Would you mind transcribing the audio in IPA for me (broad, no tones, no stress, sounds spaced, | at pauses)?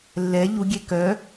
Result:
lː ɛ ʎ u ɡʲ e k œ